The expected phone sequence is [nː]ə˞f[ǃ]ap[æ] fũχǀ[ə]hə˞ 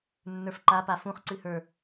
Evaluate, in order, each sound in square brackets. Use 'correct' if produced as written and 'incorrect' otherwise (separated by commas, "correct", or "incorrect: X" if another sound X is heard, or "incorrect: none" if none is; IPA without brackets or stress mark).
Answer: correct, correct, incorrect: a, incorrect: ɨ